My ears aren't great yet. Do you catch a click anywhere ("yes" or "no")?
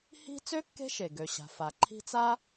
yes